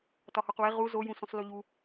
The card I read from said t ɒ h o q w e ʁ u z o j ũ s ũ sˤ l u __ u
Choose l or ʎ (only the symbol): ʎ